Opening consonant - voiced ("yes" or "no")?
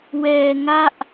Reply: yes